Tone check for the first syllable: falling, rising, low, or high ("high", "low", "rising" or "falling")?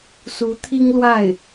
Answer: rising